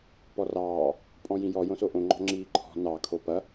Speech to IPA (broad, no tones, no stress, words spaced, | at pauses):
pɔrɑː | pʼɔ̃jĩjɔ jõsoʔõ ŋ͡ǃɔ̤ŋ͡ǁiːǃʰɔ̤ nɑ kʰopɐ